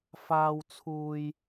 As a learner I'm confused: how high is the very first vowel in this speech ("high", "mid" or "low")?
low